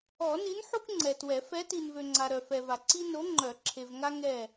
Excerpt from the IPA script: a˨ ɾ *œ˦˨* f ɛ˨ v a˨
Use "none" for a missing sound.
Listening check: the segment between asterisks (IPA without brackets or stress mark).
œ˨